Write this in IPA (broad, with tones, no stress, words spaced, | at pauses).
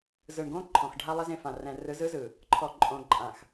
zɯ˨ɳɡõ˦ ǃʰɔ̃˨x ɖʱa˦lˠɛ˦z ẽ˨fã˨rɛ̃˨ rɯ˨˦zɯ˦zɯ˨ | ǃʰɔ˨ǃʼõ˨ ǃʼã˨x